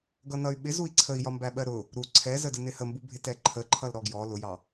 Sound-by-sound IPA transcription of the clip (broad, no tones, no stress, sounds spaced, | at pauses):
ɡ ʌ n ʌ y̯ ɓ ɪ z u i̯ ǀʰ ə i̯ j ɒ m b æ ɓ ɜ ɾ ʊ | ɾ u ǀʰ ɛ z ə d ə n ɪ h ə m b u bʱ ɪ t ɛ ǃʰ ə ǃʰ ʌ l ɾ ɔ ɡ j ɔ l ʊ j ɑ